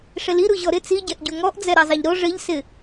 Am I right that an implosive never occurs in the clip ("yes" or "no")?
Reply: yes